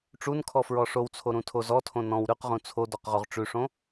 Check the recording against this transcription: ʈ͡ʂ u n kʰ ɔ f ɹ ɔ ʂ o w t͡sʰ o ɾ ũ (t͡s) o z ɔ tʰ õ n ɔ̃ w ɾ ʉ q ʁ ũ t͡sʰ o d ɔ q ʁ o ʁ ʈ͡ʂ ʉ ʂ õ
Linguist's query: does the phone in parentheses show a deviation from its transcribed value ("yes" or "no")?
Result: yes